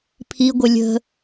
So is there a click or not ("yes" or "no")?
no